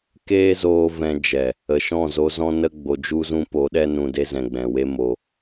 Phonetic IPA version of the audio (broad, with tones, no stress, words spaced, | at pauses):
keː˦zoː˧ vɛ̃˧ d͡ʒɛ˨ | ə˨ ʃɔ̃˦˨zo˧zɔ̃˦nə˦ ɡ͡bo˧d͡ʒu˦zũ˦ po˨˦ɗɛ˦ nũ˧de˦ zɛ̃˨ɡ͡bɛ̃˨we˦ mo˧